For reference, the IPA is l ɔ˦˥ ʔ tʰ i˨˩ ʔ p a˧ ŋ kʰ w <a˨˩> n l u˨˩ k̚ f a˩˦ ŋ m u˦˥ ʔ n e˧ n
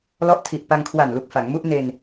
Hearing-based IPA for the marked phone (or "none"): a˨˩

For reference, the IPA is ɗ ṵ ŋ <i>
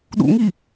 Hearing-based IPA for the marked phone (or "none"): i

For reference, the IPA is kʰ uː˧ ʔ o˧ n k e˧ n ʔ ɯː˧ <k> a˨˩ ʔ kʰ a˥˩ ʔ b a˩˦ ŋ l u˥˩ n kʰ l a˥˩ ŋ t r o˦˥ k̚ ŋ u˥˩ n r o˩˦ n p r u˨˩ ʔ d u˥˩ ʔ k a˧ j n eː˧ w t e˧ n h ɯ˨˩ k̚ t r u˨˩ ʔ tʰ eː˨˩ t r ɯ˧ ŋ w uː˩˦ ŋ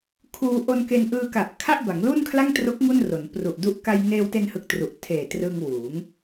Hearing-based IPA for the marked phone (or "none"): k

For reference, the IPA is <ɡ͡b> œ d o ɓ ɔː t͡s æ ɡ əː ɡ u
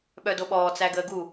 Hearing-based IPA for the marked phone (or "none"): ɓ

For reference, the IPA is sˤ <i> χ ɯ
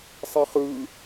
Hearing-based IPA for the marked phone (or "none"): i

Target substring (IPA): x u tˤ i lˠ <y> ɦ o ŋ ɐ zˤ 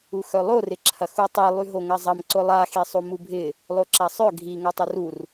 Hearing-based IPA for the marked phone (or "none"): y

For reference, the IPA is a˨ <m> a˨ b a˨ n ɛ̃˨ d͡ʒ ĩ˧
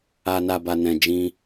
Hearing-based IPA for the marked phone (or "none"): n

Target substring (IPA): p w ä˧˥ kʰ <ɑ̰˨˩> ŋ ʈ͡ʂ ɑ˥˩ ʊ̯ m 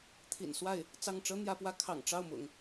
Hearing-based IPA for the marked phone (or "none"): ɑ̰˨˩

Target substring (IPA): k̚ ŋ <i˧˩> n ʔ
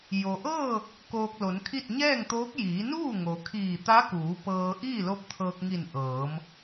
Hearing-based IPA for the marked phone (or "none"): i˧˩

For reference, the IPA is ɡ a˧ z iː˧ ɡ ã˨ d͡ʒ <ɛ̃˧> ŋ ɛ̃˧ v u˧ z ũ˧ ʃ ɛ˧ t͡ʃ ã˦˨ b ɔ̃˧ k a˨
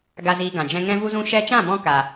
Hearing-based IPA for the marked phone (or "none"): ɛ̃˧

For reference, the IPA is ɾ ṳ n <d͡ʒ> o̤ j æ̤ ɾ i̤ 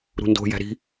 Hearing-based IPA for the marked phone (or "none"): d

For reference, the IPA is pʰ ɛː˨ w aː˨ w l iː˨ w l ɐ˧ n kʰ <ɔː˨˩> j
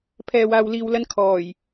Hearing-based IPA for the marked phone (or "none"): ɔː˨˩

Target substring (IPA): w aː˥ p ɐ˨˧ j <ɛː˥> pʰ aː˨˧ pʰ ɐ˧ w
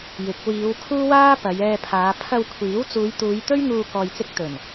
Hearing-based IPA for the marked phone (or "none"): ɛː˧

